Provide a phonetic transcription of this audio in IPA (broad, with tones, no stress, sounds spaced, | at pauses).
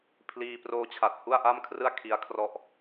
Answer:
pʰ l iː˧ p r oː˦˥ t͡ɕʰ a˨˩ t̚ h u˥˩ a̯ ʔ a˥˩ m kʰ r ɯ˥˩ a̯ kʰ i˦˥ a̯ kʰ r ɔ˥˩ ʔ